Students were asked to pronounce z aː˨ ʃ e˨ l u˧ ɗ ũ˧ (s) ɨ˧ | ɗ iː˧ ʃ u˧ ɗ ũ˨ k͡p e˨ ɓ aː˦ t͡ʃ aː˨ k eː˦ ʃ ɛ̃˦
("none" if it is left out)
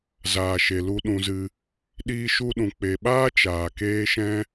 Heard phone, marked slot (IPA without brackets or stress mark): z